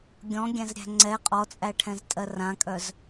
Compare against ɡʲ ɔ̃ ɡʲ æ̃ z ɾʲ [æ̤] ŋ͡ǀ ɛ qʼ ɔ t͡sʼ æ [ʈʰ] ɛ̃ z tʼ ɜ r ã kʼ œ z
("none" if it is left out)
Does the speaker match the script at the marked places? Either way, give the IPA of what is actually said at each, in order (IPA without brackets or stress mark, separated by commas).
æ̤, ʈʰ